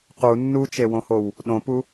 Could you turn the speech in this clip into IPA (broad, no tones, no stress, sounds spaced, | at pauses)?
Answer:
q u nː u t͡ʃ e w õ h o w | ɗ õ p u